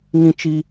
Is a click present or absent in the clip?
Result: absent